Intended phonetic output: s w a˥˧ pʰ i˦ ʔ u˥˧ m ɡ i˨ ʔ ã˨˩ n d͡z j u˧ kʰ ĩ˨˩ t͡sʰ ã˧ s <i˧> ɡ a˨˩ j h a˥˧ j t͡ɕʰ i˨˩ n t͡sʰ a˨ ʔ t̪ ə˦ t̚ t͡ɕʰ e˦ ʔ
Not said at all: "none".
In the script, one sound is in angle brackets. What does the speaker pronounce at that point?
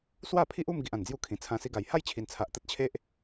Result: i˧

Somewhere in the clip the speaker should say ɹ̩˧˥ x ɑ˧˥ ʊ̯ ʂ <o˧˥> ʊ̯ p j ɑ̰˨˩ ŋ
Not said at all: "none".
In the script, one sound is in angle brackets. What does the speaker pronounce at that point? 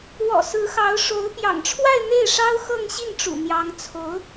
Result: o˧˥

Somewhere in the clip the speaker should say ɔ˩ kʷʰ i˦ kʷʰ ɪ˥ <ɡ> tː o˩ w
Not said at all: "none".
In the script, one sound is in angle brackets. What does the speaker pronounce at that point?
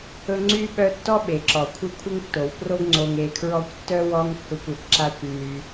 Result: ŋ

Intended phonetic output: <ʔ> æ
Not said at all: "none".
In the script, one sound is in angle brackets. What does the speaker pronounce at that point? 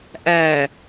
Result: ʔ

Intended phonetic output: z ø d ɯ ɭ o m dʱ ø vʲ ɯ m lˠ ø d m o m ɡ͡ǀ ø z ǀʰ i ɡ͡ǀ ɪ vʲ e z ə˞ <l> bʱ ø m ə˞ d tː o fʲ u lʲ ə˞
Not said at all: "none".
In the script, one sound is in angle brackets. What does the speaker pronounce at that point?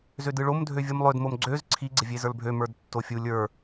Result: l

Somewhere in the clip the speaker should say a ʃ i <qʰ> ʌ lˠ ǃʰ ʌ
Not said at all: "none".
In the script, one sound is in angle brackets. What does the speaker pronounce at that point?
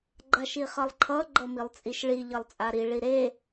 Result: χ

